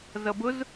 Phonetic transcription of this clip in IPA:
z ʌ b ʊ z

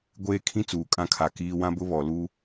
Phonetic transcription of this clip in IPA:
ɡʷ eː˦ kʰ ĩ˦ t͡s uː˨ kʼ ã˦ kʰ a˨ k iː˦ w ã˦ b ʊ˦ β ɔ˨ l u˦

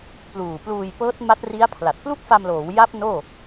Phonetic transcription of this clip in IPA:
p l uː˨˩ p l uː˧ j p ɤː˦˥ t̚ m a˦˥ t̚ r i˦˥ a̯ pʰ l a˨˩ t̚ p l u˥˩ k̚ f a˧ m l oː˩˦ w j a˦˥ p̚ n oː˥˩

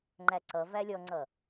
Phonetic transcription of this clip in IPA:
ŋ͡ǃ æ ǀ ʌ v æ lʲ ɔ ŋ͡ǀ ʌ

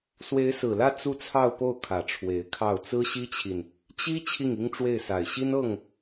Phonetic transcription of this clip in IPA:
s w e˧˥ ɪ̯ s ɹ̩˨˩ l ä˥˧ t͡s u˥˧ t͡sʰ ɑ˥˧ ʊ̯ p o˥˩ ʊ̯ kʰ ä˨˩ ʈ͡ʂʰ w e˧˥ ɪ̯ kʰ ɑ˥˩ ʊ̯ t͡s ɹ̩˥ ɕ i˥ t͡ɕʰ i˨ n | t͡ɕ i˥ t͡ɕʰ i˥˩ ŋ i˥ ŋ ʈ͡ʂ w e˥˩ ɪ̯ s a˨˩ ɪ̯ ɕ i˥ n ɤ˥˩ ŋ

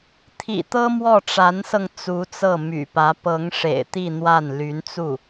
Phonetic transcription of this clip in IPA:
t̪ʰ ḭ˨˩ t̪ ɤ˥ m w ɔ˥˩ ʈ͡ʂ a˧˥ n s ɤ˧ ŋ t͡s u˧˥ t͡s ɤ˥˩ m y̰˨˩ p ä˧˥ p ɤ˧˥ ŋ ʂ ḛ˨˩ ɪ̯ t̪ i˥˧ n̪ w a˥˩ n l y˧˥ n t͡s u˥˩

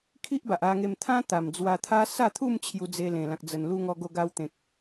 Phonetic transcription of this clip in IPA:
kʰ i˦ ʔ b a˨ ʔ a˧ ŋ e˧ m t̪ʰ ã˦ t̪ a˨˩ m d͡z w a˧ t̪ʰ a˦ s a˥˧ t̪ʰ u˥˧ m t͡ɕʰ j u˧ d͡z e˧ l ẽ˨˩ l ã˨ k̚ d͡z ə˨˩ n l u˧ ŋ ɔ˧ ɡ o˧ ɡ a˧ w t̪ ẽ˨ k̚

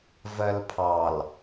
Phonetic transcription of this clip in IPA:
v ɜ l pʰ ɑ l

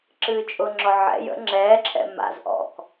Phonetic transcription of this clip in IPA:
ǁ ɨː t͡ʃʼ ʊ ŋ͡ǁ ɔ ʕ ɛ̰ j ə̰ ŋ͡ǁ ɛː ǁʰ ɛ̰ m a̰ z ʔ ɔ̰ k

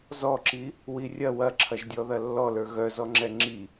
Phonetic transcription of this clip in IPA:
z ɔ ǁ i | w i rʲ ɐ w ɐ ǁʰ ɐ ʒ dʲ ɔ ð ɐ lː ɔ l ə˞ ɣ œ z ɔ ŋ͡ǁ ɛ ŋ͡ǁ i

